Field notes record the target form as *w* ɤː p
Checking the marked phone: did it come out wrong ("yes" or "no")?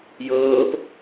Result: yes